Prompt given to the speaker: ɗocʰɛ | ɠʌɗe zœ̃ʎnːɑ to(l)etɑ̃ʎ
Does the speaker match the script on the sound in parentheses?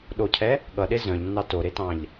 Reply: no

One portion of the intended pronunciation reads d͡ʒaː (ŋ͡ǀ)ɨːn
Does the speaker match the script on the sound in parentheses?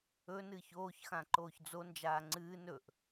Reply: yes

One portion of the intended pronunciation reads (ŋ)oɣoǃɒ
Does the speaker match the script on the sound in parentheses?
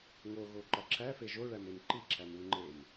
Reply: yes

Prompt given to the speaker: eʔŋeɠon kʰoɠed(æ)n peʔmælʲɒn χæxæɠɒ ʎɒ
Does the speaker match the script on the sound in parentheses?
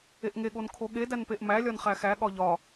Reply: yes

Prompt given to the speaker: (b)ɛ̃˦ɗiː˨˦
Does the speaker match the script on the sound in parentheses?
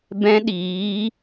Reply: yes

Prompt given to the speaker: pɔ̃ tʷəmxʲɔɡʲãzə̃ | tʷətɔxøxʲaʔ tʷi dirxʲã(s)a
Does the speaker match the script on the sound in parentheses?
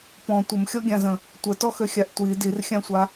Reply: no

